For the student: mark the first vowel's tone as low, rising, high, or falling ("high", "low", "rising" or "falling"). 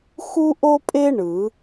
high